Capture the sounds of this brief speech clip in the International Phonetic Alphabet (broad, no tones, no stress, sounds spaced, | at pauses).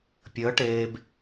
pʲ əː ʈ eː b